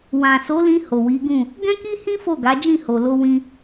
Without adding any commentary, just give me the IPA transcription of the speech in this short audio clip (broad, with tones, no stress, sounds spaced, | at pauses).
w ã˨ s o˨˦ l ĩ˧ h o˨ w i˨˦ ɡ ũ˦˨ | ɡ ɛ̃˦ k i˦ h ĩ˦ f o˦˨ ɡ a˨˦ d͡ʒ ĩ˦˨ h o˨ l o˧ w ĩ˧